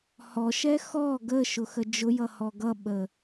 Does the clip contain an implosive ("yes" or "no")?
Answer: yes